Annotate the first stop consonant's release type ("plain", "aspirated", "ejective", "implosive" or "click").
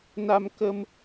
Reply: plain